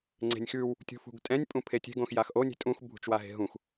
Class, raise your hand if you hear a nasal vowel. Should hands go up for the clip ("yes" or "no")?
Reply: yes